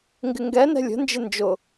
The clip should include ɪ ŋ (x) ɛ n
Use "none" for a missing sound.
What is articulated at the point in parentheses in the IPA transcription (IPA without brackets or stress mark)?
ɡ